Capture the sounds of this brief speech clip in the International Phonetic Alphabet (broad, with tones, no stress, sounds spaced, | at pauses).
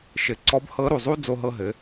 ʃ ɘ˩˧ ǀ ɔ˧˥ b h ɤ˧˥ ɾ u˩ zˤ u˥ d͡z o˧ ɦ ɤ˧ ɦ ɘ˩˧